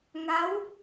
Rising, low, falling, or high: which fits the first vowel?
rising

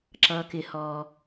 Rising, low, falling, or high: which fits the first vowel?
low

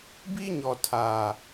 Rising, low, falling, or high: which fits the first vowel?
high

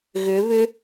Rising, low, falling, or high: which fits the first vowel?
rising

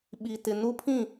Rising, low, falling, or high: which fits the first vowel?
low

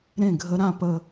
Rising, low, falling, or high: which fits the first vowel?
falling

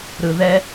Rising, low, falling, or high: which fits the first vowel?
low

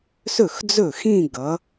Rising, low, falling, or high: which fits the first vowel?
falling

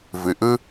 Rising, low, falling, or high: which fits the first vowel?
low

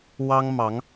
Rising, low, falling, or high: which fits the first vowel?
high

